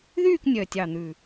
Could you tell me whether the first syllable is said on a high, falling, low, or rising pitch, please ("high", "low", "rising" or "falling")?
falling